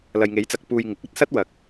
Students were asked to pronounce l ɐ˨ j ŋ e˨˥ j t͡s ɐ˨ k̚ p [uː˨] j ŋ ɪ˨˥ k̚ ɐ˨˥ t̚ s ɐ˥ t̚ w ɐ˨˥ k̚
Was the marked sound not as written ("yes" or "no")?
yes